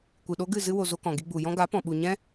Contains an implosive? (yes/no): yes